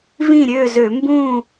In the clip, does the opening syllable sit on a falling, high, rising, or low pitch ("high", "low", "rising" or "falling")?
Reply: falling